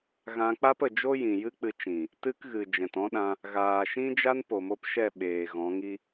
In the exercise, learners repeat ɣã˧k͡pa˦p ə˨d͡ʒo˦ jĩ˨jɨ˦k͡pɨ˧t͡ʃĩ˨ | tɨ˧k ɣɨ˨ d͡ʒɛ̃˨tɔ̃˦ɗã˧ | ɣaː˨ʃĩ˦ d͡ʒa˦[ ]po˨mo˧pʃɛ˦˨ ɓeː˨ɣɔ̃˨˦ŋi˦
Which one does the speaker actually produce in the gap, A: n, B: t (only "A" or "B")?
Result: A